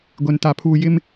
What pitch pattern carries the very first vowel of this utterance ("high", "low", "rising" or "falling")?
low